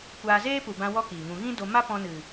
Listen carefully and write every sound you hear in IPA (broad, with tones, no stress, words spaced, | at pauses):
kʷaː˧zeː˦pu˨ bã˧wɔ˧ kiː˨ŋũ˧ ɣĩ˦do˧ ma˦pɔ̃˧nɨ˨